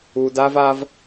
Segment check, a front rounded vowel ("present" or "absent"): absent